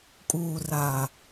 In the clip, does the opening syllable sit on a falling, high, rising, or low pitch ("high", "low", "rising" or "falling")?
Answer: low